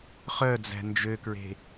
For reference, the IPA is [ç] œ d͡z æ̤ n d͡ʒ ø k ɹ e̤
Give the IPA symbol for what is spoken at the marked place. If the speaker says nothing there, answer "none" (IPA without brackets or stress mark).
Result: χ